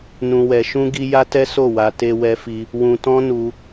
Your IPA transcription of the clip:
n ũ˧ w ɛ˧ ʃ ũ˦ ɡ i˦ j a˦ t ɛ˦ s o˦˨ w a˧ t e˧ w ɛ˧ f i˧ | w ũ˧ t ɔ̃˦ n u˧

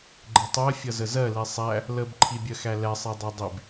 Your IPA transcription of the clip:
ɡ͡ǃ ɪ tˤ ɜ fʲ ʌ z ə z ɜ l i sˤ æ | l ə b ǃʰ i bʲ ɜ x æ l ɛ sˤ ɛ dˤ ɛ dˤ i b

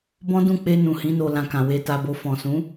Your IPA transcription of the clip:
b ɔ̃˦ d ũ˦˨ k͡p e˧ n ũ˨ h ĩ˨˦ n o˧ l ã˧ k ã˨ w e˧ t a˧ b o˧ f ɔ̃˨ s ũ˨˦

